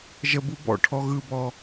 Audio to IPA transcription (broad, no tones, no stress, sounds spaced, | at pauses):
ʒ ə b u b ɔ̰ ʈʰ ɔ ɣ ɯ b ɔ